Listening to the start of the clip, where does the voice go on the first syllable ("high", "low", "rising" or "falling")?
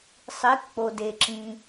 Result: rising